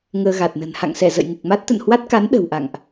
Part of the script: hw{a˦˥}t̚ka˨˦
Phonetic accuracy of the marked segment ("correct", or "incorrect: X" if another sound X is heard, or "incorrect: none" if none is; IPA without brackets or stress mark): correct